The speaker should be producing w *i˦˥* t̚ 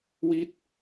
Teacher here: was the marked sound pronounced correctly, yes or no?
yes